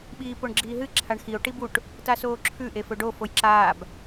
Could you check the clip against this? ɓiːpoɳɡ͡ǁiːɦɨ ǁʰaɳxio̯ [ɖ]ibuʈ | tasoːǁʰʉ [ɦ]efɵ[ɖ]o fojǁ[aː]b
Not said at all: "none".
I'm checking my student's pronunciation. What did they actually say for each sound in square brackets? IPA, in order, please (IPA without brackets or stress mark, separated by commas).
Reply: ʈ, ʔ, ɖ, aː